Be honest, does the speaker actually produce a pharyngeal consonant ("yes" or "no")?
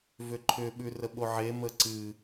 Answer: yes